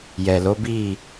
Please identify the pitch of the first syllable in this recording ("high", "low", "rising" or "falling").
low